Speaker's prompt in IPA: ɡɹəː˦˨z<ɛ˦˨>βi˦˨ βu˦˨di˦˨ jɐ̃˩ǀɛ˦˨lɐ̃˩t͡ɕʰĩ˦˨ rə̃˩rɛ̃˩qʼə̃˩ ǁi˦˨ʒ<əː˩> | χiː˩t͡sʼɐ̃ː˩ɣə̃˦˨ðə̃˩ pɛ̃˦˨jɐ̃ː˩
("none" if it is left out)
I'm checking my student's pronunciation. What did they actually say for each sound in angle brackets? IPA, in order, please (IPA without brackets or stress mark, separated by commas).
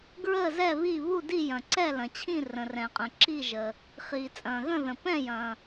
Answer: ɛ˦˨, əː˩